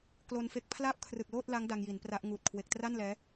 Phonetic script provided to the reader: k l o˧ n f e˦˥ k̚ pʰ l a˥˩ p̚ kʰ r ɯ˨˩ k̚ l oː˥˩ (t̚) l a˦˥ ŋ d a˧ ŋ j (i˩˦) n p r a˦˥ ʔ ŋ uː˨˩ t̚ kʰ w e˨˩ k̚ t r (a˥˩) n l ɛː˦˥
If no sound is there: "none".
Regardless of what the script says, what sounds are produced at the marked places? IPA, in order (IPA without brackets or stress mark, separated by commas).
t̚, i˩˦, a˥˩